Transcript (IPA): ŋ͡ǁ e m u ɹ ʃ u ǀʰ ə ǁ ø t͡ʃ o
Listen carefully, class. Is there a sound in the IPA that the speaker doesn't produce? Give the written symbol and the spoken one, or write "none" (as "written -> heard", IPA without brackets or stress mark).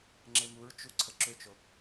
ʃ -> t͡ʃ